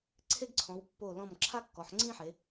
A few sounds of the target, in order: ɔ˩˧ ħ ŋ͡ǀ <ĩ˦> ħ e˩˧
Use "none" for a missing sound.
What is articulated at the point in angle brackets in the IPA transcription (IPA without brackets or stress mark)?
ĩ˦